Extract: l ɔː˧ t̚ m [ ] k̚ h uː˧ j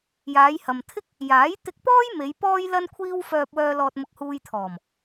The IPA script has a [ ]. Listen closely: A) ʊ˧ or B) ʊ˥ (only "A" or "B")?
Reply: A